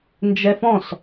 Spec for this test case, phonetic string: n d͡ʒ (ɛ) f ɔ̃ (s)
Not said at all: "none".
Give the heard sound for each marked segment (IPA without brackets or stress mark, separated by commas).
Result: ɛ, s